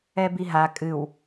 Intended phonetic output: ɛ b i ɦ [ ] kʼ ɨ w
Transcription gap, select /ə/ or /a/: a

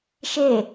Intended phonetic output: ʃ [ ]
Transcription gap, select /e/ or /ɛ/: e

